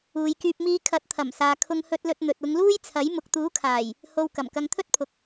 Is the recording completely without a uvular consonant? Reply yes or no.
yes